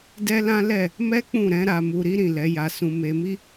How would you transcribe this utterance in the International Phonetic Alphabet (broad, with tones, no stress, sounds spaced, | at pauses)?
d ɛ˦ l ã˦ l ɛ˦˨ | m ɛ˦ k͡p ũ˦˨ ɾ ɛ̃˨˦ ɾ a˧ m u˧ ɾ i˦ ɾ ĩ˦˨ l ɛ˨˦ j a˧ s ũ˧ m e˧ m i˦